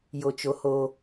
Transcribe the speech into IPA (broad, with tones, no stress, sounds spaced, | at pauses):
j o˨ t͡ʃ o˨ h o˨